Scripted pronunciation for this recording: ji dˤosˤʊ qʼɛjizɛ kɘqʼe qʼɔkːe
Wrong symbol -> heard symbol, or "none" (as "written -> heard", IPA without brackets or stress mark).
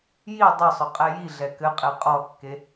z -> ɮ